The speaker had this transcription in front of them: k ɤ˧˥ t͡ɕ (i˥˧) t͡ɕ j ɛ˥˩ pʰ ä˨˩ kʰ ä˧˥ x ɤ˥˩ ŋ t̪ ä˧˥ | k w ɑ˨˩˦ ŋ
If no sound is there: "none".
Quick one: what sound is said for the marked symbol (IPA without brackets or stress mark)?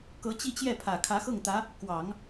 i˥˧